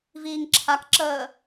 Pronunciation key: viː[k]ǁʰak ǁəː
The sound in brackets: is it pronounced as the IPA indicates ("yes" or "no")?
no